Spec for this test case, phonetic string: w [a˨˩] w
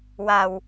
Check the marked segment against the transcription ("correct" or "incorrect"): correct